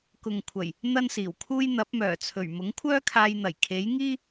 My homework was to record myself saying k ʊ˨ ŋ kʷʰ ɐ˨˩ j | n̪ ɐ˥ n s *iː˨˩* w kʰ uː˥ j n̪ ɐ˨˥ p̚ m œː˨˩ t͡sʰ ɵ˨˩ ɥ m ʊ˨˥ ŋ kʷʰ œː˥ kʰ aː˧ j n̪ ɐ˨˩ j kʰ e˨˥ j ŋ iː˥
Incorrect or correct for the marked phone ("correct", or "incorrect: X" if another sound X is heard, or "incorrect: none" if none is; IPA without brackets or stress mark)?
correct